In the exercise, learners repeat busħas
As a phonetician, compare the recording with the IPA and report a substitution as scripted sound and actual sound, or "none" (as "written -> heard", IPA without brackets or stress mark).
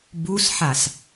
none